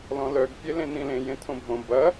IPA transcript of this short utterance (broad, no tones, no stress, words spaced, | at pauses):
lɔ̃lœɡ pʲelẽnĩlẽ jẽtʰõbʱõ bɐ